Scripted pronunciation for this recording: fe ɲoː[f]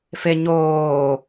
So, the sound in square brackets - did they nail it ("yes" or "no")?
no